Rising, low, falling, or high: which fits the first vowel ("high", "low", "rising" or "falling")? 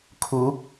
rising